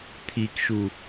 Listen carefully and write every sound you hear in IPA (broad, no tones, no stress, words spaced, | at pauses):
t̪ʰikʃu